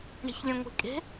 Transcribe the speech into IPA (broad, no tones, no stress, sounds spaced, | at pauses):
ɳ e̤ ç lʲ ɛ̃ ŋʷ e̤ kʼ e̤